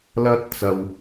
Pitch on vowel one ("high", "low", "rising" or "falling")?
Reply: high